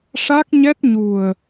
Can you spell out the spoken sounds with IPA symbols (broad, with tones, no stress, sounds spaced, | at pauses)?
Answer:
ʂ a˦˥ k̚ ɲ ɛ˦˥ t̚ ɲ u˨˩ ə̯